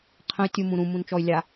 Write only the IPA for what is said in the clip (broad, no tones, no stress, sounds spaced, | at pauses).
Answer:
qʰ ə̃ y̯ tʲ u m ũ ɾ ũ m ũ n t͡ʃ ɔ y̯ lʲ a